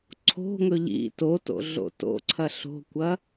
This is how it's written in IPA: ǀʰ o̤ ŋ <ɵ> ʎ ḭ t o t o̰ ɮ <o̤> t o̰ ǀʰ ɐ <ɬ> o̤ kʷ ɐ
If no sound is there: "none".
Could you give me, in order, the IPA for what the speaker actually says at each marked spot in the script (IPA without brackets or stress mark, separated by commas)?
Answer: ɵ, o̰, ɬ